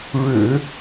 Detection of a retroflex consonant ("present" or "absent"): present